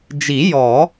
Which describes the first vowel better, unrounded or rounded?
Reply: unrounded